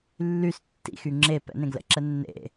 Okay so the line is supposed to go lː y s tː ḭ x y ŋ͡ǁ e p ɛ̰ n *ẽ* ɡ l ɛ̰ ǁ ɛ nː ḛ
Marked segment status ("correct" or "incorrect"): correct